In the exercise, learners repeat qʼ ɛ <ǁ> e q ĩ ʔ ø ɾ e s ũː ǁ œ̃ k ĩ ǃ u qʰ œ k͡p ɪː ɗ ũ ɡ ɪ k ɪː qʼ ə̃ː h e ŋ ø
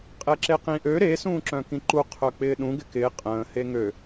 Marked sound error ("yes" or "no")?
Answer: no